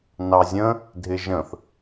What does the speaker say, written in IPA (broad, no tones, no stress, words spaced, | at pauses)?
nɑzʲə̃ | dʱɪʒə̃θ